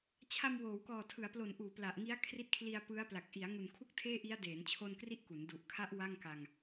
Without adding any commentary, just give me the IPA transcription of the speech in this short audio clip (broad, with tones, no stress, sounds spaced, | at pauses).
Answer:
t͡ɕʰ a˧ m w oː˩˦ w k ɔː˨˩ tʰ ɯ˩˦ a̯ p l o˨˩ n ʔ uː˩˦ p l a˨˩ ʔ ŋ i˦˥ a̯ kʰ r i˦˥ t̚ kʰ l i˧ a̯ p ɯ˦˥ a̯ p l a˨˩ k̚ ʔ i˩˦ a̯ ŋ u˨˩ n kʰ u˥˩ k̚ tʰ eː˥˩ ʔ i˦˥ a̯ d eː˩˦ n t͡ɕʰ o˧ n k r i˦˥ ʔ k u˩˦ n d u˨˩ ʔ kʰ a˦˥ ʔ w a˥˩ ŋ k a˧ ŋ